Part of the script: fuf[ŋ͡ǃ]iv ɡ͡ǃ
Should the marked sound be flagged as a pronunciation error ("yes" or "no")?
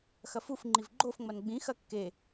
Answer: no